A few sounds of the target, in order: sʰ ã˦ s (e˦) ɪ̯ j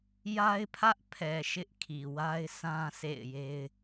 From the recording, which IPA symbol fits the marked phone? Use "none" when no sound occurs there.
ḛ˦˨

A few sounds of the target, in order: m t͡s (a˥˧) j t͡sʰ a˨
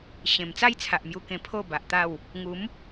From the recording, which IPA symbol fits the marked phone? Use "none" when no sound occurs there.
a˥˧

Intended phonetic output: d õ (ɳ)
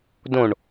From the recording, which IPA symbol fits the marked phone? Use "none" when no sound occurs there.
ɳ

